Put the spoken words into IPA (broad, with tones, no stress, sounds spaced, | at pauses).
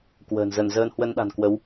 k w ə̤ː˨˩ n z ə˧˩ n z əː˧ n h w ə˧ n ɗ a̤˨˩ n k w ə˨˦ w